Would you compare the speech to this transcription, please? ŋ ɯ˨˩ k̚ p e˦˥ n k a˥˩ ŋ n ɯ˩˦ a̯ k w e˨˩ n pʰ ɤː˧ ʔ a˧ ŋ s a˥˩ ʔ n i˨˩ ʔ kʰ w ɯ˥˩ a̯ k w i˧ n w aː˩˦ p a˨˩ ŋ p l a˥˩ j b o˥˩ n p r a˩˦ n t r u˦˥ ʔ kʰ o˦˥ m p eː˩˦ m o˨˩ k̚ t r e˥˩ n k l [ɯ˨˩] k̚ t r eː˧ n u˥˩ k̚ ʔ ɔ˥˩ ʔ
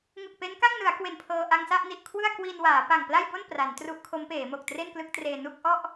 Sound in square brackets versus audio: incorrect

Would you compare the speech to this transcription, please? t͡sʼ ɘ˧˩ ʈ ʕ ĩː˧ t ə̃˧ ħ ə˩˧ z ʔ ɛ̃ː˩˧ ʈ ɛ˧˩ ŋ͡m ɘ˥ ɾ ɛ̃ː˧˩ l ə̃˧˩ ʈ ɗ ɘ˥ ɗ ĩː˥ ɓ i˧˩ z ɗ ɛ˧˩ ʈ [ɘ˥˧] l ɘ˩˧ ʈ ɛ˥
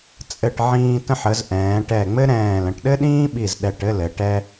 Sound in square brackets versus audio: correct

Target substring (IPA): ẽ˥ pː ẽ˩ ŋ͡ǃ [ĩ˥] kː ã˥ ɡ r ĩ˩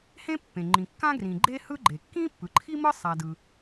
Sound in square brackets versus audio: incorrect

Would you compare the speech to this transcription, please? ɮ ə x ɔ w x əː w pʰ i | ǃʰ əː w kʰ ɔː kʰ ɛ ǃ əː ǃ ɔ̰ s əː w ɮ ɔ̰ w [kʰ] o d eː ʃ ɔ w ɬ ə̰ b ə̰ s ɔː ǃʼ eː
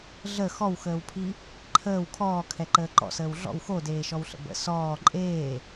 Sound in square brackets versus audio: incorrect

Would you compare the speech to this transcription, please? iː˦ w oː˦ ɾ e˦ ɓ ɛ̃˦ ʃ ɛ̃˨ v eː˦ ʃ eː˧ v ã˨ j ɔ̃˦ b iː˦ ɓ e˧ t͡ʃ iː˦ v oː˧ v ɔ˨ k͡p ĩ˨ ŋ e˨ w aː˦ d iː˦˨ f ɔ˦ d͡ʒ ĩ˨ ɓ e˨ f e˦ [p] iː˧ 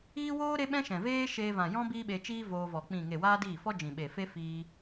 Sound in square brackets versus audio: incorrect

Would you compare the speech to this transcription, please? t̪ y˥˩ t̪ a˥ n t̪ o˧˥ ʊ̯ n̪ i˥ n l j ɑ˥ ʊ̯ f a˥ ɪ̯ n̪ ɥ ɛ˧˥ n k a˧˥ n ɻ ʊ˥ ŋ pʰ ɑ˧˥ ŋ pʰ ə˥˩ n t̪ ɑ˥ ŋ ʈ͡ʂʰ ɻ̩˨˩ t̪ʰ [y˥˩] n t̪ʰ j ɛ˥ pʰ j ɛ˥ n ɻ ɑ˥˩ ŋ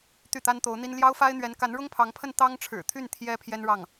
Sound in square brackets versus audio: correct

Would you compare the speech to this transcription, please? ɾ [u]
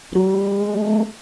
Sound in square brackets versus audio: incorrect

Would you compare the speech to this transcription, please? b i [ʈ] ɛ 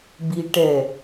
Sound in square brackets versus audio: correct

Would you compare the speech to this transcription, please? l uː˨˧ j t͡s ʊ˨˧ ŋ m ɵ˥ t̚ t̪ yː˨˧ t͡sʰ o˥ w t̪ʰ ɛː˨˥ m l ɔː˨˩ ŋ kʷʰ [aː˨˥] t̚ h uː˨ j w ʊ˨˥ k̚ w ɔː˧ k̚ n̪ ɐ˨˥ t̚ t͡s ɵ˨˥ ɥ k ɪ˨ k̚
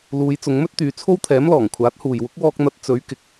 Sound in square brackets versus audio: correct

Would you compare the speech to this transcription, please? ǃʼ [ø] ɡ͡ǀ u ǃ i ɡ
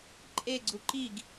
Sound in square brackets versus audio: incorrect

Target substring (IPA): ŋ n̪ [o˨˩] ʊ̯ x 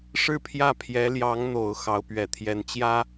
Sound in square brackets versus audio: correct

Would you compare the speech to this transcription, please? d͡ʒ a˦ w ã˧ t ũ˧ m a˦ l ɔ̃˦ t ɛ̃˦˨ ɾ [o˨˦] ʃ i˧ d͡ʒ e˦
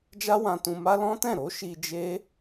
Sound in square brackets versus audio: correct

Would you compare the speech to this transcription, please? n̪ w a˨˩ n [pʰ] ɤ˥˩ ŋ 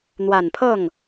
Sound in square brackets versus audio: correct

